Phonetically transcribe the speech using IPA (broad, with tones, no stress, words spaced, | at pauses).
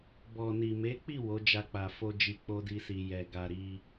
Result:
bɔ˨ni˨me˨˦k͡pi˦˨ wo˨˦d͡ʒa˧k͡pa˨fo˧ d͡ʒi˧k͡po˦di˧si˨ jɛ˧ ɡa˧ ɾi˧